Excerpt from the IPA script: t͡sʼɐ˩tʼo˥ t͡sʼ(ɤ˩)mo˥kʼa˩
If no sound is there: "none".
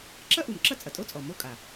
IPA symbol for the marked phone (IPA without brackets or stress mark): ɔ˩